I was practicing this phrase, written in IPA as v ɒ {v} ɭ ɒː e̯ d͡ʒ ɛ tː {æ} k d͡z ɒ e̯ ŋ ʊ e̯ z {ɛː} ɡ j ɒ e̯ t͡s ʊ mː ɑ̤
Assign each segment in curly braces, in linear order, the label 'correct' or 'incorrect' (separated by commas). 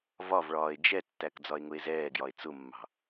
correct, correct, correct